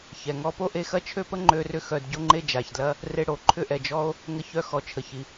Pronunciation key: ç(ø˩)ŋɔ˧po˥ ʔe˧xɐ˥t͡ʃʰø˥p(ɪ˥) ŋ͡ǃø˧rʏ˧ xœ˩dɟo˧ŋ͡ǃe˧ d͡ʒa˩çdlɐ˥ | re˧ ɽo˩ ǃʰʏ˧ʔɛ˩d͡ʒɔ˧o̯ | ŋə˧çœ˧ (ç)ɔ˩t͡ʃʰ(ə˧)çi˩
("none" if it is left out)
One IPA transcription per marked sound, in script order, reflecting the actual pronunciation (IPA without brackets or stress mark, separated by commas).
ɛ˩, ə˥, x, ə˩